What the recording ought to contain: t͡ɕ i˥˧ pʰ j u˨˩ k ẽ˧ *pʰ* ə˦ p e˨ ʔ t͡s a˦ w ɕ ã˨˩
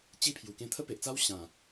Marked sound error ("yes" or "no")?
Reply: yes